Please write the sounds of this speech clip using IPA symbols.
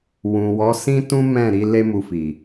wũ˨wɔ˨˦sĩ˦tũ˦ mɛ̃˦˨ɾi˨˦ le˦mu˧fi˨

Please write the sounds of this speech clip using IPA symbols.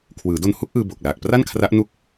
kʰwɯː˩˦do˧n hu˦˥k̚ʔɯː˧ bo˨˩k̚ laː˨˩k̚pra˥˩nkʰra˦˥ʔ nu˥˩k̚

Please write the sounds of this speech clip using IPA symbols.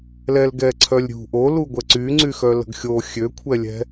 lɛlɡɛǀʰœlʲɾʲṳ ʔo luɡʷɛǀyŋ͡ǀy xœlə̤ɡxʲo xʲøkʷʰɛlʲɛ̤

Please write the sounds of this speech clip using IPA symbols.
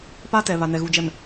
pa˦tɛ˨ βa˨nɛ˨ɣu˨d͡ʒɛ˨m

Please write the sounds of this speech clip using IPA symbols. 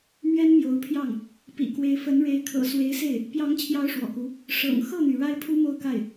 mɥɛ˥nmjo˧˥ʊ̯pʰjɑ˥˩ŋ | pḭ˨˩kwe˧˥ɪ̯fə˧˥nɻe˧˥ɪ̯ kʰɤ̰˨˩swe˧˥ɪ̯se˥˩ɪ̯ | pjɑ˧˥ŋt͡ɕʰjɑ˧˥ʊ̯ ʂwɔ̰˨˩ku˧˥ | ʂɤ̰˨˩ŋ xɤ˥˩n̪y˩ ɻa˥ɪ̯pʰu˥mo˥˧ʊ̯ka˥˩ɪ̯

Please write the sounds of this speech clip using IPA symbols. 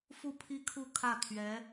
fu˥˧pʰi˥˧kʰu˥˧ kʰä˥˩ t̪ʰɥɛ˧˥

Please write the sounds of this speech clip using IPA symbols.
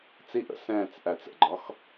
t͡siʔə̰ sɛ̃ːt͡s ʔæt͡sə̰ɡ͡ǃɒx

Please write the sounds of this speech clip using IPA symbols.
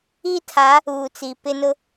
iː˦tʰa˨˦ | uː˨t͡si˨pɪ˦nʊ˦

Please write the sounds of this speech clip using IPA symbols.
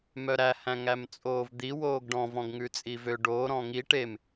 mœɾæ hæ̃ŋæmt͡sʼoːvd̪i woːɡɖɔ̃ vɔ̃ɡŋʉt͡sʼivø ɖoːɾɔ̃ ŋi ʈem

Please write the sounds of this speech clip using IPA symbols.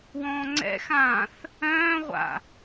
wɔ̃ːŋ͡ǀɛ̰xãːθ | œ̃ːʁʷa̰

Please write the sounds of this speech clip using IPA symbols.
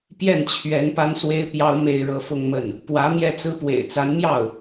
pjɛ˥˩nt͡ɕʰɥɛ˧˥n pa˥nswe˥ɪ̯pjɑ˥ʊ̯ me˥˧ɪ̯ɻɤ˥˧fʊ˥˧ŋmə˥˩n | pwä˧˥ mjɛ˥˩t͡sɹ̩˥ pwḛ˨˩ɪ̯t͡sa˧˥nmjɑ˥˩ʊ̯

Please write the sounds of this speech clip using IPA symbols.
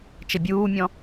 t͡ʃəbʲuːmʲɔ̃

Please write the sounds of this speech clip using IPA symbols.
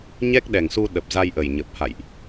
ɲɛ˦˥k̚ɗɛ˨˩ŋsu˧ ɗə˨˩p̚za˧jʔə˨˩j ɲə˨˩p̚ha̰˧˨jʔ

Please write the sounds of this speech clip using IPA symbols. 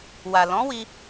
wa˨ lɔ̃˨˦wi˧

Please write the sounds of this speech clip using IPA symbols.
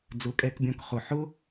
d͡zʊ˨˦kʼɛ˧kbʲɔ̃˧k χʊ˨ħʊ˦

